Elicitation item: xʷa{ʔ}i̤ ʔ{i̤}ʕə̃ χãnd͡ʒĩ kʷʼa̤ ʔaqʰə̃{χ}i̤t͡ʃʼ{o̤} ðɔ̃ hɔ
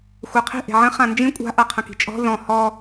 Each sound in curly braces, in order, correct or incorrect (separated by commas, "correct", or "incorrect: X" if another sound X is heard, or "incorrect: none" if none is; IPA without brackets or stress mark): incorrect: qʰ, incorrect: e̤, incorrect: k, incorrect: ɔ̤